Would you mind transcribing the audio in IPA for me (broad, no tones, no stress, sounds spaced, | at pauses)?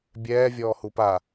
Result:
bʲ ɛː vʲ ɔː h u p a